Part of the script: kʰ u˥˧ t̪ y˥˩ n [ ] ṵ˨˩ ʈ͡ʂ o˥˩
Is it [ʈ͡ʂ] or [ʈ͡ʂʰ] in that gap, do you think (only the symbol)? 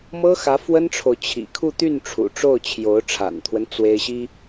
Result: ʈ͡ʂʰ